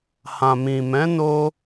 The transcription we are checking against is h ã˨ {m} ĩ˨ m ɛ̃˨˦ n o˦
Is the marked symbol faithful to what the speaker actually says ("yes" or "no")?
yes